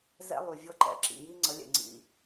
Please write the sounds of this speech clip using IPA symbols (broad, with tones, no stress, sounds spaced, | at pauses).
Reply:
z ɛ̰˦ lˠ y˨ vʲ ɤ˦ ǃ ɛ̰˧ ǁ ḭ˨ j i˦ ŋ͡ǀ ə˨˦ lʲ ɛ̰˨ ŋ͡ǀ ḭ˧